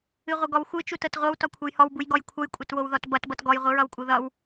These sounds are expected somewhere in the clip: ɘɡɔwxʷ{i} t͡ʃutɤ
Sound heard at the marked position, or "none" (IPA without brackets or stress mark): ɨ